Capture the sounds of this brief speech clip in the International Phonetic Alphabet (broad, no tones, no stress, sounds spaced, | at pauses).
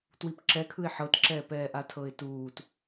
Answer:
t w i p ǁ ɛ kʰ ɯ ɪ̯ ħ ɤ t ǁ ɛː p ɛː ʔ a tʰ ɤ ɪ̯ t uː t